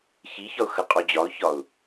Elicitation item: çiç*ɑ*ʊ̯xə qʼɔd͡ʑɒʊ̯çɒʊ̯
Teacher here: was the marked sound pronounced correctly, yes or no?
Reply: no